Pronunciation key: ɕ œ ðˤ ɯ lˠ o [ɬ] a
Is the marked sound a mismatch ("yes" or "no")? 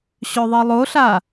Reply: no